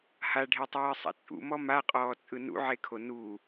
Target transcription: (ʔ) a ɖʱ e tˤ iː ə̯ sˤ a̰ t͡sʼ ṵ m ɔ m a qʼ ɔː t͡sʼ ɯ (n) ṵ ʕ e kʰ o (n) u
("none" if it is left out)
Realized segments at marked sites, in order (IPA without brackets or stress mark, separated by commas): h, n, n